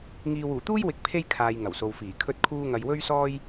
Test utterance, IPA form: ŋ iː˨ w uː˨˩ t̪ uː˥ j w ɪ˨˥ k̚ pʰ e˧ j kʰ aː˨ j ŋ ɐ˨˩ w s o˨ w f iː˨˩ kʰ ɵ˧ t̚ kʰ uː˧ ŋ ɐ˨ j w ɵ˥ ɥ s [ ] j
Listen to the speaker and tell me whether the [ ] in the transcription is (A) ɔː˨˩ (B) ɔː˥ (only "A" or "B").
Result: B